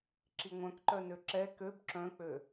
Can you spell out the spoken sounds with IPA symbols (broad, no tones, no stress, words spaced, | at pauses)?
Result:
ǁiŋʷœ̃kǃœ nøǁɛ køb ǁœ̃k͡pø